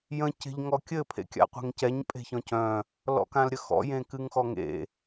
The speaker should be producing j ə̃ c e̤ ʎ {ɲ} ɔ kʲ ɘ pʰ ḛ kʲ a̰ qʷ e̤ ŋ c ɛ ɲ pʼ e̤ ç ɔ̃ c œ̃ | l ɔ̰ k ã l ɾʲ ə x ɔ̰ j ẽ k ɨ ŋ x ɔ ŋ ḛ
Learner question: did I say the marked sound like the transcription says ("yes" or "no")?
no